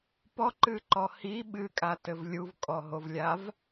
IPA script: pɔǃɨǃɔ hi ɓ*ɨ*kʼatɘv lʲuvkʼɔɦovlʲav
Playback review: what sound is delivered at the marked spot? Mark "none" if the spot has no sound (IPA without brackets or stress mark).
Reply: ɨ